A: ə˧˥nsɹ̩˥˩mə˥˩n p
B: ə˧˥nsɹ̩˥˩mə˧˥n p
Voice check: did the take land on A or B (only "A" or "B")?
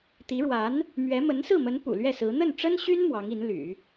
B